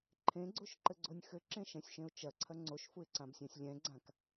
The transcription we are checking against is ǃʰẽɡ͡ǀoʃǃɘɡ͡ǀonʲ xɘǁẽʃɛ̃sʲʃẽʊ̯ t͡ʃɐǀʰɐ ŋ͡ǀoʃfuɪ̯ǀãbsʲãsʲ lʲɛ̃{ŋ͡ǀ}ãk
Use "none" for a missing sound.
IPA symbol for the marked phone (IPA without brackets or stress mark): ɡ͡ǀ